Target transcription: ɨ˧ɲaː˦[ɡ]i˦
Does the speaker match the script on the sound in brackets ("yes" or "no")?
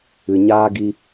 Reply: yes